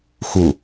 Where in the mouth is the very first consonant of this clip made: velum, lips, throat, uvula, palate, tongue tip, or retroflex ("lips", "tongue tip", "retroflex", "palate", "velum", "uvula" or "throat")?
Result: velum